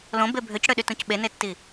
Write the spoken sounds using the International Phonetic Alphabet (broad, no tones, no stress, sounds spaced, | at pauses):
l õ b e bʱ ø c ɽ ø ɗ y t ũ c ɓ e n e tː i